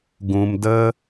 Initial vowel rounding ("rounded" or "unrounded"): rounded